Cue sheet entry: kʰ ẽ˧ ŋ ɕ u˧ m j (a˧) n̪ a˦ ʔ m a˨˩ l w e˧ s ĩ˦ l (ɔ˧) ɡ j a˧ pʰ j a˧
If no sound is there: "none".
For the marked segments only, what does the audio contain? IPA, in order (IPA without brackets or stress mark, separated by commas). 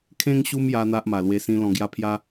a˦, ɔ̃˧